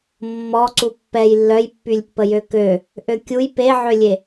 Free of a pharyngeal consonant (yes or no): no